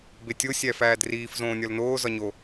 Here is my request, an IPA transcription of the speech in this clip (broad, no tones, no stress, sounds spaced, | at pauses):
b e tʲ o sʲ æ f æː d r iː f z õː nʲ ɒ l n oː z ɒ ɲ o